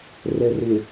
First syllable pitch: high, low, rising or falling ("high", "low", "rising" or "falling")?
low